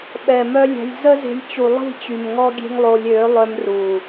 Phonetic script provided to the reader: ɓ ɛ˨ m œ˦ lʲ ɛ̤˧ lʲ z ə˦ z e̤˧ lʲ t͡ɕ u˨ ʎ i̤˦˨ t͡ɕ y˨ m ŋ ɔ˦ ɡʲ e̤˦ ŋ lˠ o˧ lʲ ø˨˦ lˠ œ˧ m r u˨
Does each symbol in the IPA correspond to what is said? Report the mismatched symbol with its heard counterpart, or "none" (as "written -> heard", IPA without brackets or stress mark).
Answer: ʎ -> lˠ